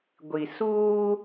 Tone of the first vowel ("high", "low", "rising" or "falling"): low